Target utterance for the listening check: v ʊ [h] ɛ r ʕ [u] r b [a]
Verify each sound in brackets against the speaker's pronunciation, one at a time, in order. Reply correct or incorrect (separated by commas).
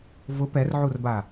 incorrect, correct, correct